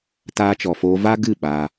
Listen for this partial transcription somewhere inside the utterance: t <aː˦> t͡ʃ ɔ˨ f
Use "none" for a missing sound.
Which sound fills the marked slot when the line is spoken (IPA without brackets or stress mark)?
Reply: aː˧